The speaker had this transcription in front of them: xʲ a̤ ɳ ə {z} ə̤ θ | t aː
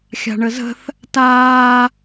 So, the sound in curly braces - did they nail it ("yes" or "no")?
yes